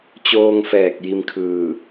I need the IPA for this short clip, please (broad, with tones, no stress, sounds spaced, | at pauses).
t͡ɕ oː˧ ŋ f ɛː˧˩ k̚ j i˧ m kʰ ɯː˧˩